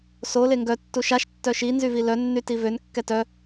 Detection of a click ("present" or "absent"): absent